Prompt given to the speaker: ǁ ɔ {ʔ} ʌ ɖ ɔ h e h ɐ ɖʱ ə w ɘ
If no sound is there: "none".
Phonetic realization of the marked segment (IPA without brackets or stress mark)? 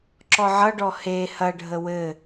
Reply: ʕ